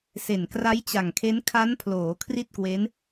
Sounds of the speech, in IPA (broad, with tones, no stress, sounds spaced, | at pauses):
s e˨˩ n k r a˦˥ j t͡ɕ a˨˩ ŋ kʰ e˦˥ n kʰ a˦˥ n pʰ l oː˩˦ kʰ r i˥˩ t̚ k w e˦˥ n